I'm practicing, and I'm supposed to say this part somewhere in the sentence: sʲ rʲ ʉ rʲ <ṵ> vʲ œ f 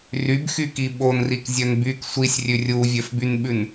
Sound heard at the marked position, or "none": u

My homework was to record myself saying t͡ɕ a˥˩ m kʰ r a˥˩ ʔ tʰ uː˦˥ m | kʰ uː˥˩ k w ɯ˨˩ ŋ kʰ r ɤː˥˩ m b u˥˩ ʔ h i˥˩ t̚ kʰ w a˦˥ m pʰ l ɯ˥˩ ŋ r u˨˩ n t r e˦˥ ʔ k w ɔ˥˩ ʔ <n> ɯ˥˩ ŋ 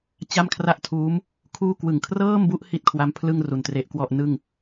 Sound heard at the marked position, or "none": n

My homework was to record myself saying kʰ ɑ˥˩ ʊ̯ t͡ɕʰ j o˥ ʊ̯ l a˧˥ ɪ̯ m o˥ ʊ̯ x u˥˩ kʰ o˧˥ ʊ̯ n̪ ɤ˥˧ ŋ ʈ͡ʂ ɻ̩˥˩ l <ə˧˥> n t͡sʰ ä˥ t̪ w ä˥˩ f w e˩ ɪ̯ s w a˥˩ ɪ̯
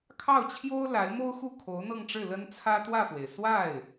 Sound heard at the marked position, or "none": ə˥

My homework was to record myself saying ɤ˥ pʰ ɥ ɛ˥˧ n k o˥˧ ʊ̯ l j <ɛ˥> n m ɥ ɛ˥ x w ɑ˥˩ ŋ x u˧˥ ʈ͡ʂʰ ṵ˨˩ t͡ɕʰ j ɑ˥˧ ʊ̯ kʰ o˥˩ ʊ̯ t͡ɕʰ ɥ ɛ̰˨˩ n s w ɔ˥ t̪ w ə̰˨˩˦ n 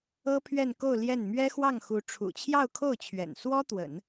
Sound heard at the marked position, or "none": ɛ˥˩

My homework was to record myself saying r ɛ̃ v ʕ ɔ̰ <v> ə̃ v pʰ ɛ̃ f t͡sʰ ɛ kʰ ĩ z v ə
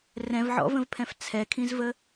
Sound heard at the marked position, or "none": v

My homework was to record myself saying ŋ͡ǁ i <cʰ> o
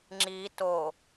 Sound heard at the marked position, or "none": t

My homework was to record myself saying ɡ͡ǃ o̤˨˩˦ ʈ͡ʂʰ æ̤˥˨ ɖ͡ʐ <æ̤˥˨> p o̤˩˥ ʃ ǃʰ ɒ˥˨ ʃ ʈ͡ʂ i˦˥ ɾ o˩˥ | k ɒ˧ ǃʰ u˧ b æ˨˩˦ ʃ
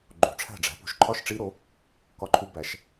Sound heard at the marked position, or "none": æ̤˩˥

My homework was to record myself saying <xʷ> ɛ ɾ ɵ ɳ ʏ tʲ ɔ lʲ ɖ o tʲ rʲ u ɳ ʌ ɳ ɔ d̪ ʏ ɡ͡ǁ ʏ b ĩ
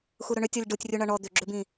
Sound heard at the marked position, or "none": xʷ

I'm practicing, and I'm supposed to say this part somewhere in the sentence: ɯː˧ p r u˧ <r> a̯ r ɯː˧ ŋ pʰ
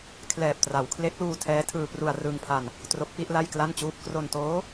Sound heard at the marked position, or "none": none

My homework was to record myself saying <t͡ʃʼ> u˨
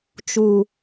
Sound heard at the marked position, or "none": t͡ʃ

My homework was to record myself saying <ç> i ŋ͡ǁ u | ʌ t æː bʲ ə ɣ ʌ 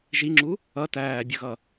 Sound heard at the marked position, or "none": ʒ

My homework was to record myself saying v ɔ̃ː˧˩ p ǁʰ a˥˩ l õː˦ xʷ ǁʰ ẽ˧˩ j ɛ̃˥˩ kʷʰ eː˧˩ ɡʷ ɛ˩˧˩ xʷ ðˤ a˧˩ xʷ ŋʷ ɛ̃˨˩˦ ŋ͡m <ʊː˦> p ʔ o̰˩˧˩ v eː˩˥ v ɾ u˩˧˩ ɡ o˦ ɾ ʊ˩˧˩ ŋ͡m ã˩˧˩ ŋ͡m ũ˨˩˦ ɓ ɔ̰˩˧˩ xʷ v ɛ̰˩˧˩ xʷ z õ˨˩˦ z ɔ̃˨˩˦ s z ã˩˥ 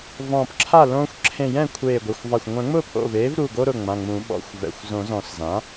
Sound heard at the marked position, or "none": ʊː˥˩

